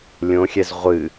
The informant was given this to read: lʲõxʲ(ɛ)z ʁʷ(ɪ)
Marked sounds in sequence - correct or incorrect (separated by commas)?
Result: correct, incorrect